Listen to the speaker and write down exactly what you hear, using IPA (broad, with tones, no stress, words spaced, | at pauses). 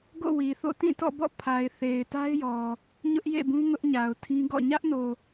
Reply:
ɡo̰˦˨wi˨θo̰˦˨ tĩ˦˨tɔ̰˦˨bɔ̰˦˨ pʰa˨ɪ̯θe˨ɪ̯ta˦ɪ̯jɔ˨ | ɲʊ˦ʔjḛ˦˨bũ˦ ŋʊ˦ʔɲa˨ʊ̯tʰĩ˦ɡɔ̰˦˨ ɲä˦ʔno˨